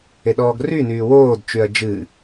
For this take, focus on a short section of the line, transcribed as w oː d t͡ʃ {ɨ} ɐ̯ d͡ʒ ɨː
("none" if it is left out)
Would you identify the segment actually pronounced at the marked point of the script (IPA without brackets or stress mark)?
y